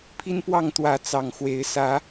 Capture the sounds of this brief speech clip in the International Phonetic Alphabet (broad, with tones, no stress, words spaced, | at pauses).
pʰi˦npwɑ˥˨ŋt̪wä˨˦ t͡sɑ˨˩ŋxwe˨˦ɪ̯ sä˨˦